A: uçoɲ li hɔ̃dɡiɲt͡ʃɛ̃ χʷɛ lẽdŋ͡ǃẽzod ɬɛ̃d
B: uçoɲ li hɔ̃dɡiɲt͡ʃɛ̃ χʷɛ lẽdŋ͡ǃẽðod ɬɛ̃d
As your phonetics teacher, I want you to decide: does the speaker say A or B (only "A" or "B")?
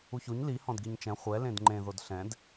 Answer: B